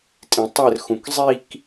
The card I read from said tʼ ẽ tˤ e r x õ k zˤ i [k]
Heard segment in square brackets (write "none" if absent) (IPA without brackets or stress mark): k